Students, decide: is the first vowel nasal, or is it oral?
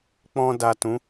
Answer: nasal